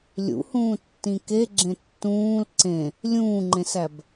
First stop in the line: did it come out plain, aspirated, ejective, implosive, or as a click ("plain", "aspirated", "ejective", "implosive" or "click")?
plain